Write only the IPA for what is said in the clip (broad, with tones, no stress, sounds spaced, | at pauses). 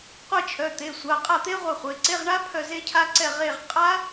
qʷ e˦˨ t͡ʃʰ œ˩˧˩ t̪ e˩˧˩ sʷ a˩˧˩ qʼ a˦˨ t̪ e˦˥ ʁʷ ɛ˦˨ χʷ e˩˧˩ ǀ e˧˥˧ ʁ ɳ a˦˥ pʰ œ˦˨ z e˦˥ cʰ a˦˥ ǀ ɛ˦˨ ʁ e˦˨ ʁ qʼ a˦˥